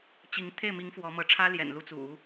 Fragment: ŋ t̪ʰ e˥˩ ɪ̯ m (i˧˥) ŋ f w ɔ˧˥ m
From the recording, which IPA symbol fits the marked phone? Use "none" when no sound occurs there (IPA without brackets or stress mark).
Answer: i˧˥